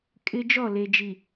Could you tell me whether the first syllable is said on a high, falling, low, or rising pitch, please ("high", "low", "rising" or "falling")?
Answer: high